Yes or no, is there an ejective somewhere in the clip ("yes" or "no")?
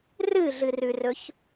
no